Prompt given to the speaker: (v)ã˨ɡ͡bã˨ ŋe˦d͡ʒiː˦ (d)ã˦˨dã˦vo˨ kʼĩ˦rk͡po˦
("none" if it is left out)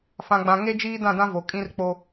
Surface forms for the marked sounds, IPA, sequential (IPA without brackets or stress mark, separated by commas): f, d